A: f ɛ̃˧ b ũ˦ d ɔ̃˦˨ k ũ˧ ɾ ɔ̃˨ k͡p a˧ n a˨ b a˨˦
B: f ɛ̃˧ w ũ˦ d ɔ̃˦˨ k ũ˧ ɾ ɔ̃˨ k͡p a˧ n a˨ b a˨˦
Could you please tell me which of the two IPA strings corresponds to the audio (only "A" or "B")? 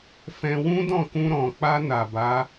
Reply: B